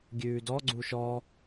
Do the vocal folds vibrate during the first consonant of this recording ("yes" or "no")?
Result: yes